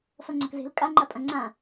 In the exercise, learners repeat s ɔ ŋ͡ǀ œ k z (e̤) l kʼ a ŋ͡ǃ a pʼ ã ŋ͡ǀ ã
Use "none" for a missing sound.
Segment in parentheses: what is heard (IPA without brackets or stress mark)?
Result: e̤